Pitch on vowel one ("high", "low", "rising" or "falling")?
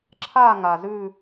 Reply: falling